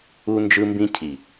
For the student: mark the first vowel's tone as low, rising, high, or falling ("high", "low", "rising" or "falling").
high